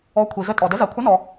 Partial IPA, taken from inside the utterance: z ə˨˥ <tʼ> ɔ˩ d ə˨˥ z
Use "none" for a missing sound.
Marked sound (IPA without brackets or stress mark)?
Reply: tʼ